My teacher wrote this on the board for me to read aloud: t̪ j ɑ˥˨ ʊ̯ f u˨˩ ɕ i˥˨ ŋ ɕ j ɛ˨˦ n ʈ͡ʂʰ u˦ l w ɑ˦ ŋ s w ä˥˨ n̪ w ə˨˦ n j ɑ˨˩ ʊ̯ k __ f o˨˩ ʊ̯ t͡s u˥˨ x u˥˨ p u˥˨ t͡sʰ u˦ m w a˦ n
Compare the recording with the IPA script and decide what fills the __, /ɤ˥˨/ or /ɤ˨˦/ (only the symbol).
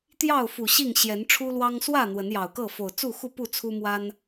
ɤ˥˨